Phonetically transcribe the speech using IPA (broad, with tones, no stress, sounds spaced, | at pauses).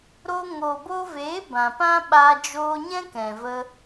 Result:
ɾ o˧ ŋ oː˨ b o˧ v eː˨˦ b ã˨ p ã˦ ɓ a˧ d͡ʒ oː˧ ɲ ɛ̃˦ k ɛ̃˨ v ə˧